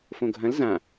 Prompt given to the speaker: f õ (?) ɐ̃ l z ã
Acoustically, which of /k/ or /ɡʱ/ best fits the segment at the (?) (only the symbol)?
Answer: ɡʱ